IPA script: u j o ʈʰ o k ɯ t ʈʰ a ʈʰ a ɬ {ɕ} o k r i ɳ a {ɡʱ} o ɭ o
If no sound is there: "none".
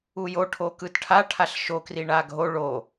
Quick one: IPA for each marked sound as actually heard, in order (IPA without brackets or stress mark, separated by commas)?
ʃ, ɡʱ